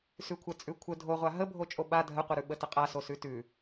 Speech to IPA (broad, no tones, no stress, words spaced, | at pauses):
sʉkʷʰə t͡sʼʉkʷʰə dʱoʁʷa ɦəbʱo t͡ʃʼoɓa dʱəqʷəɾʉ ɓətəqʼaso sʉtʉ